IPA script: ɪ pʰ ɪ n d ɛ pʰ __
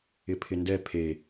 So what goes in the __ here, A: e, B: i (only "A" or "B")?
A